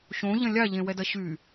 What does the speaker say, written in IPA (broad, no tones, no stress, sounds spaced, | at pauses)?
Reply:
ɕ õ ʎ ɐ̃ lʲ a ʎ ẽ w ɛ d ɐ ɕ y